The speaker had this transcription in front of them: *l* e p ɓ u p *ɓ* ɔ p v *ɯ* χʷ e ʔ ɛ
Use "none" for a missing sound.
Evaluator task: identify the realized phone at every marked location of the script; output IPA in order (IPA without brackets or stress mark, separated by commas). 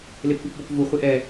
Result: l, b, u